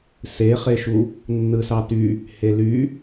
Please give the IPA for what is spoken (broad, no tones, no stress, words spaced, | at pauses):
seχeʃu | nːɯsɑty | hely